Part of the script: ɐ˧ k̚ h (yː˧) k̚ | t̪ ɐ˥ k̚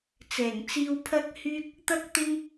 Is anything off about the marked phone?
no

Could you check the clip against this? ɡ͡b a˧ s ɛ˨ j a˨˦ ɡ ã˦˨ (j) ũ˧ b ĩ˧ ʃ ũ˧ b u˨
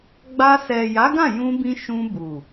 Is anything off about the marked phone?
no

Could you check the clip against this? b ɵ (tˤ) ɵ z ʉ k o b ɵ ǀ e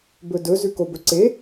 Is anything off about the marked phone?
yes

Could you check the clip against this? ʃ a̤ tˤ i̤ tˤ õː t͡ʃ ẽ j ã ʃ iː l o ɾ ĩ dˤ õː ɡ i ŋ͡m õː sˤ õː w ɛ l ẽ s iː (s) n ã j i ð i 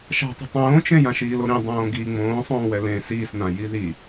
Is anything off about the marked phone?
no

